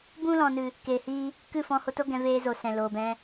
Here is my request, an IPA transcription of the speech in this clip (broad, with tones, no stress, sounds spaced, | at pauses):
b ũ˧ l ɔ̃˨ n ɨ˨ | k eː˨ h iː˧ | k ɨ˦˨ f ɔ̃˧ h o˧ t o˦ ɡ ɛ̃˧ v eː˧ z o˨ s ɛ̃˨ l oː˨ b ɛ̃˧